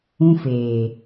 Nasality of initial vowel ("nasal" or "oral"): nasal